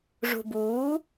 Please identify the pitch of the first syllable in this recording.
low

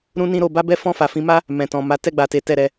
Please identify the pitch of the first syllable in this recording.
high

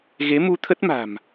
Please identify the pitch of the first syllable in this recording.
rising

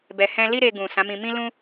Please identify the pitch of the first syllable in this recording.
low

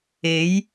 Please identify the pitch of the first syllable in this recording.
rising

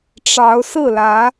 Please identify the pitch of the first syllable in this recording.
rising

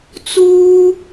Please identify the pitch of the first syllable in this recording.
high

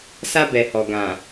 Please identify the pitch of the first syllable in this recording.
high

